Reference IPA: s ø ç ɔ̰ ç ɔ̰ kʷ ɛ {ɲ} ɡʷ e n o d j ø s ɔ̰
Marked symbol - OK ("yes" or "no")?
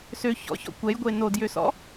no